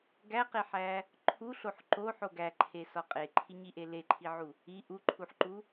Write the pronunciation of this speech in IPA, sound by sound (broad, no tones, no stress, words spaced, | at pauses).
ɡæqeħæ | ǃʰuɬoħ ǃoħo ɡæǃʰesɒ qʼeǃʰiɲiʔe leǃʰiʕu | i ʔuǃʰuħǃu